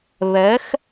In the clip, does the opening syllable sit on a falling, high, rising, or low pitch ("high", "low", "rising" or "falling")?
rising